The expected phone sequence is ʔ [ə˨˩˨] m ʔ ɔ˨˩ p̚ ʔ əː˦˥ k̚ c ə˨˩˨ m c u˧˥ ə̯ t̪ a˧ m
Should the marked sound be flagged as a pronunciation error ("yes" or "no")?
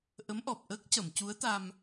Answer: yes